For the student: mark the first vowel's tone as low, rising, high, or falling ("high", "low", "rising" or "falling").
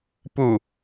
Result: low